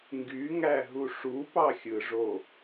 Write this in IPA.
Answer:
ŋ ɡ y ŋ æ ɦ u ʂ u p ɑ xʲ ɯ ʐ o

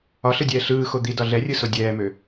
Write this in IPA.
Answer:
ɒ ɬ ɯ dʲ ɛː ɬ ɯː x o d̪ i d ɒ ɮ ɛ rʲ ɯ s o dʲ ɛː m ø

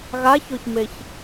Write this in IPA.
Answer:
ɣ a ç o ç m e ç

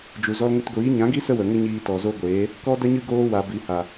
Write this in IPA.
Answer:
d͡ʒ u˨ z ɔ˧ l ŋ ə˧ t ɡʷ iː˨˦ ɲ ã˨˦ ɡ i˦ s ə˦ w ə˨ ŋ ə˦ ɲ iː˧ t ɔ˨ z o˦ ɡʷ eː˨˦ | k ɔ˦ d ə˦ ɲ ɨ˦ ɡ oː˦ w a˨ b i˨ h a˨

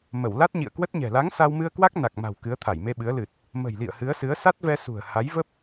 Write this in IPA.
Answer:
m ə˧˩ w l a˦˥ t̚ ɲ ḭ˧˨ ə̯ k w ə˦˥ t̚ ɲ ɛ̤˨˩ l a˨˦ ŋ s a˧ w m ɨ˧ ə̯ k w a˦˥ k̚ n a˨˩ k̚ m a̤˨˩ w k ɨ˨˦ ə̯ t̪ʰ a˧˩ j m e˧ ɓ ɨ˨˦ ə̯ l ɨ˨˩ t̚ | m ə̤˨˩ j l ḭ˧˨ ə̯ h ɨ˨˦ ə̯ s ɨ˨˦ ə̯ s a˦˥ t̚ v ɛ˧ s ṳ˨˩ ə̯ h a˨˦ j v ə˦˥ p̚

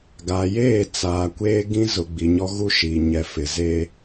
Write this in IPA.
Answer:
ɡ a˨ j eː˦˨ t͡s aː˨ kʷ eː˦ ɡ ĩ˦ z ʊ˨ ɡ͡b i˨ ɲ ɔ˦ ɣ u˦ ʃ i˨ ɲ ɛ˨ f ɪ˨ z e˦

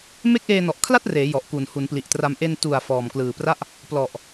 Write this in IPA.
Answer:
m e˦˥ k̚ ʔ eː˧ n ɔ˨˩ ʔ kʰ l a˥˩ t̚ r eː˩˦ j ɔ˨˩ ʔ k u˨˩ n h u˩˦ n p l i˨˩ ʔ t r a˧ m ʔ e˧ n t u˨˩ a̯ f ɔː˨˩ m k l ɯː˨˩ p r a˥˩ ʔ | p l ɔ˨˩ ʔ

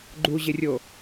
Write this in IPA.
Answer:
ɡ͡ǃ u ʑ ɪ rʲ o

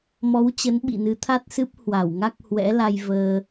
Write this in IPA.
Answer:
m ɔ˨˦ w t͡ɕ ə˨˦ n ɓ ḭ˧˨ n ɨ˨˦ t̪ʰ a˦˥ t̚ s ɨ˦˥ p̚ h w a˧˩ w ŋ a˦˥ k̚ h w ɛ̰˧˥ l a˧ j v əː˧

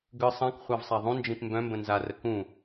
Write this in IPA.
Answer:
ɡ ɯ sˤ ã k χʷ a v sˤ a ðˤ ũ n d͡ʒ ĩ p m b œ̃ m b ə̃ n z a r ə k ũ

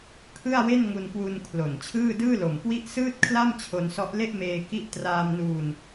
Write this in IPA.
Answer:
kʰ ɯ˥˩ a̯ w e˥˩ n ŋ u˧ n k w u˧ n kʰ l o˨˩ n t͡ɕʰ ɯː˥˩ d ɯː˥˩ l o˨˩ m k w i˥˩ ʔ s ɯː˥˩ t̚ kʰ l a˥˩ m t͡ɕʰ o˧ n s ɔ˦˥ ʔ l e˥˩ ʔ m eː˧ k i˦˥ ʔ t r aː˧ m n uː˧ n

